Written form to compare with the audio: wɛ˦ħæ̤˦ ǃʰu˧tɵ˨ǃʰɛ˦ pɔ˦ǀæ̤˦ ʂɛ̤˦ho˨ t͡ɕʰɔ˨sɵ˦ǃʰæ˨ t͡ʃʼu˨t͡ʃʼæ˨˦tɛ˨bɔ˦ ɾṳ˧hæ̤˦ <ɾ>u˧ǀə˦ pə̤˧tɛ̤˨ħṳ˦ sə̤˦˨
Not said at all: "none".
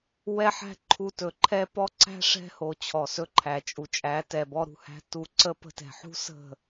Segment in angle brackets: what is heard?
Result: t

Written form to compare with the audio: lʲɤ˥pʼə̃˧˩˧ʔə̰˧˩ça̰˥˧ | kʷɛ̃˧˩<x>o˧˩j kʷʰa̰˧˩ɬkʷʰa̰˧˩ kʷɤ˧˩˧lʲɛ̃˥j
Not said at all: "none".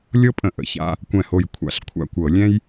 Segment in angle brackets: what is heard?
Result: h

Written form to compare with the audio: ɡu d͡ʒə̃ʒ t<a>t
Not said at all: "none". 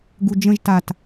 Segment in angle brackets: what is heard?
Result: a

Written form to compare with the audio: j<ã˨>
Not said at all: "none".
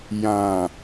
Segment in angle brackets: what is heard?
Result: ã˨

